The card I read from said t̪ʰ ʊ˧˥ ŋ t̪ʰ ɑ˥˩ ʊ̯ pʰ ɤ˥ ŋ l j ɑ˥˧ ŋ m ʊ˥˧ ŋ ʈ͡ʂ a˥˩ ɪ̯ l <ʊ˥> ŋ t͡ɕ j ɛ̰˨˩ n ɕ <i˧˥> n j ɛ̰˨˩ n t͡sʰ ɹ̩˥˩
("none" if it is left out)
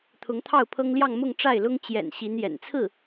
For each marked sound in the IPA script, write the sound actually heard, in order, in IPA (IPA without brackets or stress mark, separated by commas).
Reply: ʊ˥, i˧˥